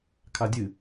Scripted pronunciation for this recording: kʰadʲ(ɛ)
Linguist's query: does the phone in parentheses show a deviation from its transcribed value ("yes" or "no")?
yes